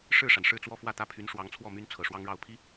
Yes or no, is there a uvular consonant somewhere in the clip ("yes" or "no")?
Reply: no